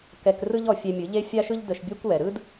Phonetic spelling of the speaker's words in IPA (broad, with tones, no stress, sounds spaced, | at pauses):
k ɛ˧ k r ɯ˦ ʎ ɔ˧ fʲ ɛ˧ mʲ ɯ˨˦ ʎ e˦ fʲ a˦ ʃ ɯ˦ ʎ d ə˧ ʃ bʲ ɛ˦ kʷ w ɛ˨ ɾ ɯ˦ d